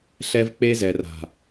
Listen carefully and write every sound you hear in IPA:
ɬ ɛ˦ v k͡p e˦ z ɛ˨ r a̤˨

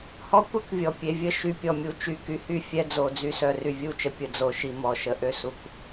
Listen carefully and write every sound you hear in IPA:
h ɔ˦ kʷ e˦ k vʲ ɔ˨ pʲ e˧ vʲ ə˦ ʃ y˨ pʲ ɔ˨ mʲ u˨ t͡ʃ y˨ k y˧ h y˦˨ fʲ ɛ˧ d͡z o˨ d͡z y˧ s œ˨ r y˨ vʲ u˦˨ t͡ʃ ə˧ pʲ ə˨ d͡z o˨ ʃ i˨ m ɔ˨ ʃ ə˧ ʔ ø˦ s u˨ k

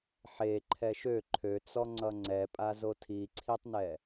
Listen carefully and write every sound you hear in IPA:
ħ e ǃʰ ɛ ʃ ø ǃʰ ø t͡s ɔ ŋ͡ǀ ʌ ŋ͡ǀ ɛ pʼ a z o tʰ i ǀʰ i tˤ n ɛ

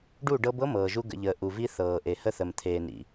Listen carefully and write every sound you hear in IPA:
ɖ u˦˨ ɖ ɤ˦ b ɤ˦ m ɤː˨ ʒ u˦ ɡ ə̰˨ ʎ əː˨ ʔ u˨ v i˦ θ ɤː˨ ʔ e˨ h ə˦ θ ə˨ m t̪ʰ eː˨ n ḭ˨

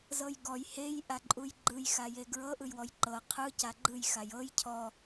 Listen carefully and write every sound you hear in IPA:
z ɤ j ɡ ɔ j h e j ʔ a ǃʼ u j ɡ͡ǃ ɯ j x a j e ɡ ɹ ɤ ʔ ɯ j w ɔ j ǃ ɤ qʰ ɯ c a ɡ͡ǃ ɯ j x a j ɤ j cʰ ɔ

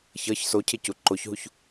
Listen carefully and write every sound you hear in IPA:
ç ʌ ç s o cʰ e c u ǃ o ç ɦ u ç

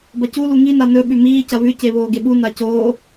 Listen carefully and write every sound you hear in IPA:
b ɐ c u l u ŋ i n a n ɵ ɓ ʉ m iː c ɐ β ʉ c e β oː ɡ e ɓ u n a c oː

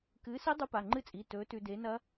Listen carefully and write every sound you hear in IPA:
k ɨː˨˥ s i˦˥ dˤ u˦˥ p a˩˧˩ ŋ͡ǃ ɨ˦˥ t͡sʼ i˩˧˩ t ɵː˨˥ t ʉ˧ d e˨˥ n ɐ˦˥

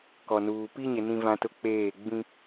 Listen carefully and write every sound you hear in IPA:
k ɔ˨ n uː˨ p i˦ ɲ ɪ˨ n ĩ˦ v ã˦ t ʊ˦ k͡p eː˦˨ ɡ͡b ĩ˦

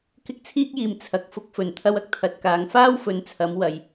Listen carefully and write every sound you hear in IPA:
k ɪ˨˥ k̚ t͡sʰ iː˧ k̚ j iː˨˩ m t͡sʰ ɐ˨ k̚ f ʊ˧ k̚ f ɵ˨˩ n t̪ʰ ɐ˧ w ɐ˥ k̚ t̪ʰ ɐ˨ t̚ k aː˨ ŋ f aː˥ w f ɵ˨˧ n t͡sʰ ɐ˨˧ m w ɐ˨ j

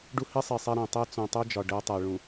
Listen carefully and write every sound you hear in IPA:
ɖ u˦ h i˦ sˤ i˨ sˤ ɛ˦ ɾ ɛ̃˨ tˤ ɛ˦ t͡s ũ˨ tˤ u˦ d͡ʒ ɒ˨ ɖ ɛ˦ tˤ ɛ˨ ɭ ũ˨

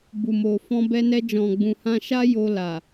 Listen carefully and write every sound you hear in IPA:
b u˨ m o˨ f ɔ̃˧ b ɛ˧ n ɛ˧ d͡ʒ ɔ̃˨ ɡ͡b ũ˨ h ã˧ ʃ a˦ j o˧ l a˨

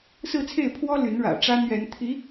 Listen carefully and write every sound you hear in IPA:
s ɹ̩˥˧ t͡sʰ e˥˩ ɪ̯ pʰ w ɔ˥ l y˧˥ n ɻ ä̰˨˩ ʈ͡ʂ a˥ n ɥ ɛ˧˥ n t̪ʰ i˧˥

